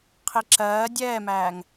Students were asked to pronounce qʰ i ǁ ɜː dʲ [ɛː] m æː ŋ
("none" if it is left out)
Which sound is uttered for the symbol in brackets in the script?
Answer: ɛː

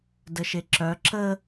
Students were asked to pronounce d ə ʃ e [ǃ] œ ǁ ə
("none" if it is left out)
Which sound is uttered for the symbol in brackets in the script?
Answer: ǁ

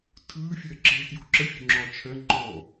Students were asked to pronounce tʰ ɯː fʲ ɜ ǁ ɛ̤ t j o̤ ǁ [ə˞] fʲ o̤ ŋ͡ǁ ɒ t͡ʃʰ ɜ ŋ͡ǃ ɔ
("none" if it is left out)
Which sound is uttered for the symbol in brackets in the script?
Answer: ə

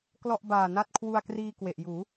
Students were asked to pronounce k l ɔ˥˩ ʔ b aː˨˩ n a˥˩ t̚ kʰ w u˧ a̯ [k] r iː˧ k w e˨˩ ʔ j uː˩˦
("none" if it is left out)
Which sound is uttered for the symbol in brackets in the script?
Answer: k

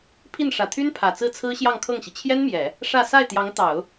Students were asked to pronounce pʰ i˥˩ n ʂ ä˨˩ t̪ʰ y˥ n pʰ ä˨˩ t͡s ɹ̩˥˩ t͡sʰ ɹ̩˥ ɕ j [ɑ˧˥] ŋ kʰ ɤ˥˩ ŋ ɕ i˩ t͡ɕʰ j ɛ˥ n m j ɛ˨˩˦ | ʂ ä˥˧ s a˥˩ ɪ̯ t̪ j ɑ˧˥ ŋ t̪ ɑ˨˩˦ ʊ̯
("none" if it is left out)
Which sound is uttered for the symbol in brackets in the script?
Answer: ɑ˥˧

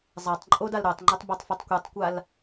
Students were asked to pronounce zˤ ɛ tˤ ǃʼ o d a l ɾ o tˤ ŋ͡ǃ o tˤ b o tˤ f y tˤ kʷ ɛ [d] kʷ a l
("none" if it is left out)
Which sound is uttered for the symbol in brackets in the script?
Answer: tˤ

